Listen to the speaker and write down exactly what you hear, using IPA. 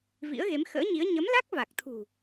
v ḭ˧˥ ə̯ ɣ e˨˦ m x ə̰ː˧˥ ɲ i˨˦ ə̯ ɲ ə˨˦ m l a˦˥ k̚ v a˨˩ k̚ t̪ʰ ṳ˨˩

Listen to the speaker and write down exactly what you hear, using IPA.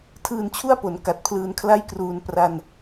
tʰ ɯː˧ n t͡ɕʰ u˥˩ a̯ p o˩˦ n k a˨˩ t̚ pʰ l ɯː˧ n kʰ l a˥˩ j k r uː˧ n p r a˧ n

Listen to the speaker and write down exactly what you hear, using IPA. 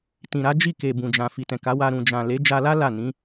t ĩ˨ ɾ a˨˦ d͡ʒ i˦˨ k e˨ b ũ˨ d͡ʒ ã˨ f i˨ t ɛ̃˨ k a˨˦ w a˧ ɾ ũ˨ d͡ʒ ã˨ l e˨˦ d͡ʒ a˧ l a˦ l a˦˨ n ĩ˨˦

